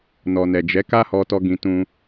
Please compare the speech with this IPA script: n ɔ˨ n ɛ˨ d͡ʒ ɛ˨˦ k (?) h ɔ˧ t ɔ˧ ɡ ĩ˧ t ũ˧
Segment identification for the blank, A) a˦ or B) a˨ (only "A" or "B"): A